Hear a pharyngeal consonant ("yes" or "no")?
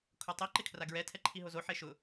yes